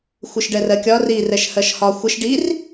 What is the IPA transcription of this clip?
xʷɨʃɖɛrɜkʲɒ ri rɛʃhɜʃhɒ xʷɪʃ ɖir

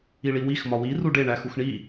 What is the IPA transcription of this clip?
iɭiwix mɒwi ruɖe ɳæxuxɳi

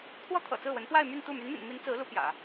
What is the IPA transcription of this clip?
kʰwɔ˥ t̪ʰɤ̰˨˩t͡sɹ̩˥˩wə˧˥n pwa˥˧ɪ̯my˥˧nt̪u˥˩ my˧˥nmḭ˨˩ni˦mi˧˥n t͡sɹ̩˧˥ lu˧˥ pjä̰˨˩˦

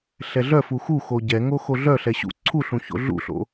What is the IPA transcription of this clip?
ɬɛɮœ fuxuxo ɟɛŋo xoɮœ ɬɛɕṵ ǀʰuɬũ ço̰ɮṵɬo̰

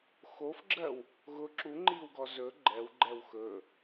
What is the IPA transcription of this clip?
xofɡ͡ǁɜw | ɣʊ ǁuŋ͡ǃiːwɡɔ zɵ ɡ͡ǃɛwɡ͡ǃɛw xɵ

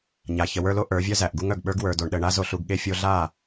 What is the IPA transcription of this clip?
ɲa˨ çə˨wə˞˧lo˦ ʔə˞˨˦vʲœ˦zæ˨ʔɡu˦ŋ œ˨ɡɓə˞˦ɡ wə˞˨do˨ɳɗə˨ ɳa˦ zo˧ɬu˧ɡɠe˦ fʲo˧ɮa˦˨

